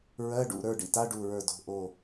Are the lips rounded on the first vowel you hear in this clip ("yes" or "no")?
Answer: no